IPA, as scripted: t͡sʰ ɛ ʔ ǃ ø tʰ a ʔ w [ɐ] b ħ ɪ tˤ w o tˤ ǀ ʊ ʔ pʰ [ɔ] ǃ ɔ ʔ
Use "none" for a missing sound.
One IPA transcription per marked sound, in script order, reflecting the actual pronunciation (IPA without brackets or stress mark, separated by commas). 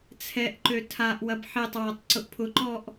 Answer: ɐ, ʊ